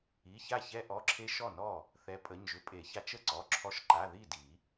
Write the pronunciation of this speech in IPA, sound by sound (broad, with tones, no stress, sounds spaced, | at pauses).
i˩˧˩ ç a˥˩ ç ɛ˧ ʔ ɔ˩˧˩ ǁʰ e˧ ʃ ɔ˥˩ n ɔ˥˩ | θ ɛ˨˥ pʼ ə˩˧˩ ɲ ʒ ʏ˧ pʼ e˨˩˦ ç a˧ t͡ʃ ə˥˩ ǀ ɔ˩˧˩ ǁʰ ɔ˧ ʃ ǃ a˩˧˩ ð i˥˩ d i˨˩˦